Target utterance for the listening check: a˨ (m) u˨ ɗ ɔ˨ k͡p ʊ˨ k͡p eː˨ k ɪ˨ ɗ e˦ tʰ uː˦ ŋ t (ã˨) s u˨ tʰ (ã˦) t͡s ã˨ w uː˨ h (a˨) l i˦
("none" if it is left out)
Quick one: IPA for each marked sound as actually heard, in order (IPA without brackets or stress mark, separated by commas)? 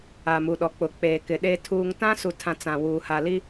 m, ã˦, ã˨, a˨